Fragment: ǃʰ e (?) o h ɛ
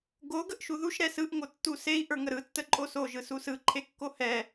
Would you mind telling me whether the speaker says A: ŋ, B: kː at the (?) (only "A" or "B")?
B